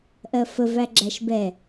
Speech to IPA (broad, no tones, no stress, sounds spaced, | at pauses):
ʔ ɜ f ə v æ ɡ͡ǁ æ ʃ b ɛ